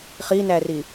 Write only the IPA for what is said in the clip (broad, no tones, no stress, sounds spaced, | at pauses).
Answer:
χ i n æ r i